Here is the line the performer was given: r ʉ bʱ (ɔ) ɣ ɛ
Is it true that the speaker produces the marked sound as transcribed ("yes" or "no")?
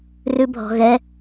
no